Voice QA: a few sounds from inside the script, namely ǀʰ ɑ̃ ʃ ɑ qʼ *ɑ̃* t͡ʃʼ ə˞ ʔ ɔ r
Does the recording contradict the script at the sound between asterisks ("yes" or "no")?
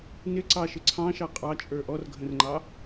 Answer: yes